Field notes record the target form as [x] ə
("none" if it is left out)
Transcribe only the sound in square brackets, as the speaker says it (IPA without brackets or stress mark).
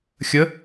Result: xʲ